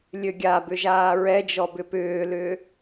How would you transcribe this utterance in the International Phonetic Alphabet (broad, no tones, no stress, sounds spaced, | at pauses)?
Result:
lʲ ø ɡʲ a b ʏ ʒ aː ɹ ɛ d͡ʒ ɔ b ʏ p ʏː l ʏː